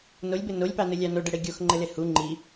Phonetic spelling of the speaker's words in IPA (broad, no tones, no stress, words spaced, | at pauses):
nolʲbɘ nolʲpɑnɘlʲɑ noɖɘɽe ɡʲoxŋ͡ǃɘle hu ŋ͡ǃi